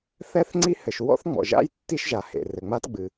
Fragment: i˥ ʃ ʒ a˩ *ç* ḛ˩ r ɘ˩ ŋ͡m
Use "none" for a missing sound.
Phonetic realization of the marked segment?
h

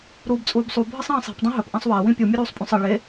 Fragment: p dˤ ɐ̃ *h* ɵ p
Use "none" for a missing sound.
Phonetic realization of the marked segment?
ɦ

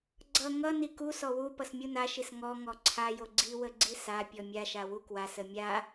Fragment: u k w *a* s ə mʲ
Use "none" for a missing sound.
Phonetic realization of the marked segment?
a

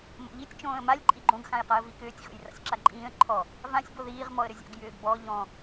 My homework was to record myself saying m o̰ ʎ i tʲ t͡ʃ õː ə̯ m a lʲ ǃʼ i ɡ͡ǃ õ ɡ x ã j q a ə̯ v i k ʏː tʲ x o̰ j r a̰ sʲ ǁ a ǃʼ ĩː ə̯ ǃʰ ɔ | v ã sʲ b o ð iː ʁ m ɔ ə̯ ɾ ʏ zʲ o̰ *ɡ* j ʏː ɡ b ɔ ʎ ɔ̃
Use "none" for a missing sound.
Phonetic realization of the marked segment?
ɡ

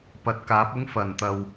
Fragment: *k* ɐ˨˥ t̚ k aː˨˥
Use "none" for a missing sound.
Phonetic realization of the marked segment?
p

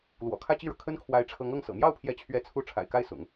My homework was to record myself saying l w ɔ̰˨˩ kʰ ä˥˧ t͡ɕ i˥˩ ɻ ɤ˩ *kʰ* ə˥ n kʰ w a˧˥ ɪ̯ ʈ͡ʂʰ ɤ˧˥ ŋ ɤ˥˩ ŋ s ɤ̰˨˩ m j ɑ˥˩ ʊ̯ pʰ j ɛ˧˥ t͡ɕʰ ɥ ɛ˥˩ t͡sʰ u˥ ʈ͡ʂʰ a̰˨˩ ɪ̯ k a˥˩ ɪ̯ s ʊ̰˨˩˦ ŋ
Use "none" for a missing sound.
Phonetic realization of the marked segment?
kʰ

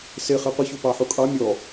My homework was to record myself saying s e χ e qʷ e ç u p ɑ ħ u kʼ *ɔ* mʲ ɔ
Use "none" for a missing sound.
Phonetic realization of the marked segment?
ɑ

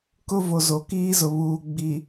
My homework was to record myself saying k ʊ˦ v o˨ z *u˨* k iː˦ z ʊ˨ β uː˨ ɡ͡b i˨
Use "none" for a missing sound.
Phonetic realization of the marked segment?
o˨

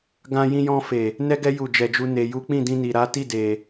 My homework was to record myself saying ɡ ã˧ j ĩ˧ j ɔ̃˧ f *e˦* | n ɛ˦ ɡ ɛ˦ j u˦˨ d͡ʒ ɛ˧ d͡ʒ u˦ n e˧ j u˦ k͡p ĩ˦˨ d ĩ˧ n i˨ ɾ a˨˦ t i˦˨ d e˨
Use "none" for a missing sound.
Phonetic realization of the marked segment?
e˨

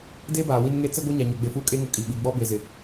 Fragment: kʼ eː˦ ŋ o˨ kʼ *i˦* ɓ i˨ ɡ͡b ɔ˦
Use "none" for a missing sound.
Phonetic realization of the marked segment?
i˨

